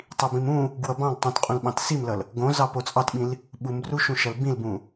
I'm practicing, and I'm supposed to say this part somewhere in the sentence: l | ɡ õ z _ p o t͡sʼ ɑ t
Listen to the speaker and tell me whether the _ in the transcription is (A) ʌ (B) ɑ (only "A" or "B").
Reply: B